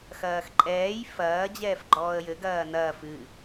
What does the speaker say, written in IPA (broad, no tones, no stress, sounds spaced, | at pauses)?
x ɐː x ǃʼ ɛː j f ɐː d͡ʑ ɛː f ɡ͡ǃ ɔː ə̯ j ɘ ɡ ɐː n ɐː f ɨ